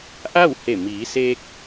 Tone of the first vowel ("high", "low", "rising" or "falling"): falling